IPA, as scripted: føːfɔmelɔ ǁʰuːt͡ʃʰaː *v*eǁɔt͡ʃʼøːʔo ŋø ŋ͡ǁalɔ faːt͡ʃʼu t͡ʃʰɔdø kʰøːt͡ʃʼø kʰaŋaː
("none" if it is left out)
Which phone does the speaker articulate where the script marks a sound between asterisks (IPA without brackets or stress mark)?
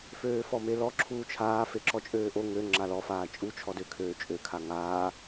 f